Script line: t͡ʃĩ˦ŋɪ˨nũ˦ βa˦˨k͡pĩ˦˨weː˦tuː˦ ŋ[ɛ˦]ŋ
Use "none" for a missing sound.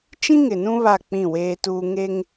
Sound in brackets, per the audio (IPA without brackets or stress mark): e˦